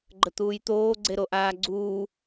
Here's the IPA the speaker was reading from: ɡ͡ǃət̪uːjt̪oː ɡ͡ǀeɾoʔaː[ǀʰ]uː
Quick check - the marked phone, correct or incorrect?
incorrect